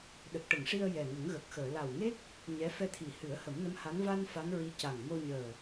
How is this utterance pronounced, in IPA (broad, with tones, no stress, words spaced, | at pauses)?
ɗə˨˩k̚ʈə˨˩˨ŋʂi˧ə̯ jɛ˨˩ŋə˨˩˦ŋɣə˨˩k̚xəː˨˩˨ la˨˩wŋe˦˥k̚ | ɲɛ˧˥ fɛ˧t̪ʰi˨˩hɨ˨˩˦ə̯ hə˨˩˦mnə˧˥mha˧˥n va˧n fa˧˥nɹi˧˥ca˨˩ŋ mo˧ɲəː˨˩